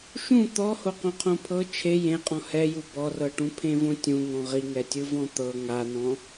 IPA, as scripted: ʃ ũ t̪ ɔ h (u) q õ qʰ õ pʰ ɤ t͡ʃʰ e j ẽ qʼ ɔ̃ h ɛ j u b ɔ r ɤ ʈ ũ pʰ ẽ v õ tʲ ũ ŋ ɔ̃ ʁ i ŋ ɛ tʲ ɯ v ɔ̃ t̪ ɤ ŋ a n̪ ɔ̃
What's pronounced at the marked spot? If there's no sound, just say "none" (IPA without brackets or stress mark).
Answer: o